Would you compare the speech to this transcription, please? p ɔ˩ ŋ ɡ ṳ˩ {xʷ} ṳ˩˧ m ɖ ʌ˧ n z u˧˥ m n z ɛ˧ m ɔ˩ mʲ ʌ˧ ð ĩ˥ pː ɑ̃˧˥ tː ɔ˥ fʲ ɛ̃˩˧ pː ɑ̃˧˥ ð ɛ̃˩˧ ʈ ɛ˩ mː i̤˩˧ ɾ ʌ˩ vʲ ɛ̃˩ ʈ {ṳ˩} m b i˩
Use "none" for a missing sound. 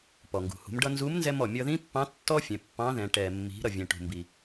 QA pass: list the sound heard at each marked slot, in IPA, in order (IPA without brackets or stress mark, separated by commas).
h, ṳ˩